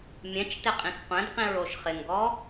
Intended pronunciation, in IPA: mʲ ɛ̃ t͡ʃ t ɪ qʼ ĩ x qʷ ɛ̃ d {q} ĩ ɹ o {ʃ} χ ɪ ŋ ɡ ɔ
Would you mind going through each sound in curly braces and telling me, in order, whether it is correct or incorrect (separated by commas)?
correct, correct